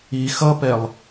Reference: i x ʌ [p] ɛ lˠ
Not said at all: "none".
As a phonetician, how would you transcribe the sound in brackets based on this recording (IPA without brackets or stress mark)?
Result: p